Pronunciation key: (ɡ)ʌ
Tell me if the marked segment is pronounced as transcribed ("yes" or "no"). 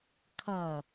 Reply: no